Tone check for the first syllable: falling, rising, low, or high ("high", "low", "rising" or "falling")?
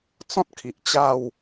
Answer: high